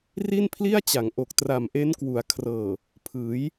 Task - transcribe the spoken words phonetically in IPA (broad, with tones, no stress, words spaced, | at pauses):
ri˥˩npʰli˥˩a̯t͡ɕa˩˦ŋʔo˨˩k̚ tra˨˩mʔe˦˥nkwu˩˦a̯kʰrɤː˨˩ | pʰɯː˩˦j